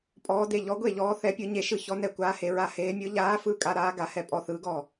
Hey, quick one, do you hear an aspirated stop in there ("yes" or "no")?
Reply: no